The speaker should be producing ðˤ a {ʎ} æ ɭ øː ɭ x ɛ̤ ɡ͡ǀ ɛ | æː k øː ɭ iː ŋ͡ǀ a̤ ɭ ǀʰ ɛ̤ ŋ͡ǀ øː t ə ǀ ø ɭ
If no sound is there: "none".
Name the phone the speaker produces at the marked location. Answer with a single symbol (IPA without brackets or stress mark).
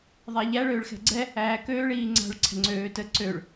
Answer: ʎ